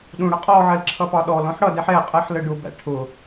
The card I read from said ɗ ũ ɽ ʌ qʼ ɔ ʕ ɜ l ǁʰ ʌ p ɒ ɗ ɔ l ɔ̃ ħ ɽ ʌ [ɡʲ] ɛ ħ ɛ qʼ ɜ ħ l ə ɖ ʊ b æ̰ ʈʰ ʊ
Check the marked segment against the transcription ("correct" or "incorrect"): incorrect